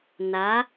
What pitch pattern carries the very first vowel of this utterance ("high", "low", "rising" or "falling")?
rising